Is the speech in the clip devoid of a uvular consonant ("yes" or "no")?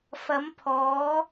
yes